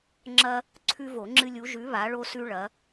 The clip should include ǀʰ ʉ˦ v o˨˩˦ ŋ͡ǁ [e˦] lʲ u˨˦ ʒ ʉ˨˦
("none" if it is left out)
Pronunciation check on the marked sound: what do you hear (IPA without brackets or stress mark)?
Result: ɨ˦